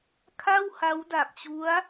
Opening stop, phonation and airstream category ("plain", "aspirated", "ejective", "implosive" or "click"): aspirated